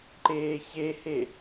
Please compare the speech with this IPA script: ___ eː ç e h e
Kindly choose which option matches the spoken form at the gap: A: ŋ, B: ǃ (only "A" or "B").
B